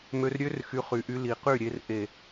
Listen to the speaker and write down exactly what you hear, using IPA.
m ø˧ r ɾʲ ø˦ r x y˧ χ y˨ ʔ y˧ l i˨ q y˦˨ ɾʲ e˧ r ʔ e˨

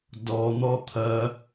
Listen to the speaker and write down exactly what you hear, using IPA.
d ɔ n̪ ɔ t̪ʰ ɐ

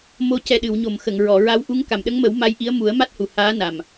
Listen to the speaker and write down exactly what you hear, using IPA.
m o˧ c ɛ˨˩ ɗ ɨ˨˩˨ w ɲ o˨˩˨ m x ə˨˩˨ ŋ ɹ ɔ˨˩˨ ɹ a˧˥ w ʔ u˧˥ ŋ k a˨˩˨ m ɗ ə˧˥ ŋ m ə˨˩˦ w m a˧˥ j ʔ i˧˥ ə̯ m u˨˩˦ ə̯ m a˦˥ t̚ h u˨˩˨ h aː˧˥ n a˨˩ m

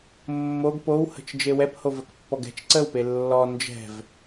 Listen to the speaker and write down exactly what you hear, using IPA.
mː o ɡ p o w h ə̤ t͡ʃ d͡ʒ e w ɛ p h o v ə k pː ɔ ɡ ɛ̤ t͡ʃ ǀ ə w p e lː ɔ n d͡ʒ ɛ̤ v

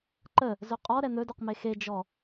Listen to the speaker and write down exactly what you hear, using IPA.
ǃ ə | z ɵ qʼ ɔ ɾ ɛ n̪ ɵ d ɵ q m e x e d͡ʒ ɔ

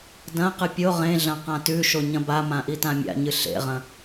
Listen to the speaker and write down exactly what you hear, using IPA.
d ɐ̃ q ɨ pʲ o ʁ ẽ ɮ ɐ̃ q ã t ʉ ʃ o ɲ ɐ̃ b a m ã ʔ i t ã mʲ a̰ ɲ ɨ ɬ ḛ ʁ ɐ̃

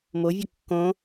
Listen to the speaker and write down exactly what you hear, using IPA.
m o vʲ ɒ kː õ

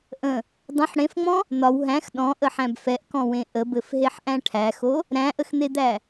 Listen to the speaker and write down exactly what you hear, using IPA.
ʔ ə̃ | dˤ ə̃ ħ ɽ ẽ f ŋ͡m ɔ̃ | n̪ ɒ w ɦ æ̃ x ɗ ɔ̃ ʔ ə ħ æ̃ b f ɛ ʔ k ɔ̃ w ẽ ʔ ə b ɘ f ɦ e ħ ʔ æ̃ ʈʰ æ x o | ɾ æ̃ ʔ ə x n̪ e d̪ æ

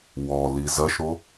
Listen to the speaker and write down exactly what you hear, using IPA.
w ɔ l i z ɐ ʃ ɾ o

